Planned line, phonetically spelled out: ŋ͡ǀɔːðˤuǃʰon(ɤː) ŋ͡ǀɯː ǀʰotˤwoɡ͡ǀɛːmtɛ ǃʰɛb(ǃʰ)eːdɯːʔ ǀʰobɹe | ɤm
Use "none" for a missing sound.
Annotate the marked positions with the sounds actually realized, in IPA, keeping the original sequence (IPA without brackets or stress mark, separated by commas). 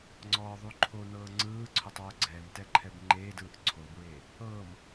ɤː, ŋ͡ǃ